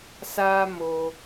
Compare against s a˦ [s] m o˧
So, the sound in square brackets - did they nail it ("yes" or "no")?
no